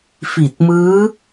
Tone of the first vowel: low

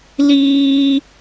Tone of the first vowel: high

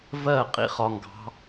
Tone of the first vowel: falling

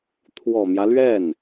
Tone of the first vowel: low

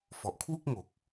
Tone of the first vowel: low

